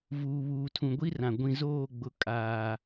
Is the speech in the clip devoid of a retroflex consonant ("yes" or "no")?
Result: yes